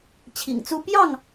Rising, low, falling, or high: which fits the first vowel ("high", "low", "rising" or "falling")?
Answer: low